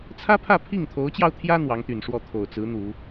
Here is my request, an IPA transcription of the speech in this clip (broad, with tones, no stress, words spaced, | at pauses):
t͡sʰä˥pʰä˥˧ pʰi˥˩ŋt̪ʰo˧˥ʊ̯t͡ɕjɑ˧ʊ̯t̪ʰjä˥ n̪wɑ˧˥ŋt̪y˨˩nʂwɔ˥˩ t̪ʰo˨˩ʊ̯t͡sɹ̩˧˥ n̪u˨˩˦